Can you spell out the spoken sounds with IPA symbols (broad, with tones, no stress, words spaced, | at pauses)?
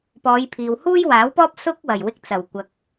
pɔː˨˧jpʰiː˨whuː˥j waː˨˥wpɔː˥p̚ sʊ˥k̚wɐ˨˩j wɪ˧k̚t͡sɐ˨˩wkʷɐ˨k̚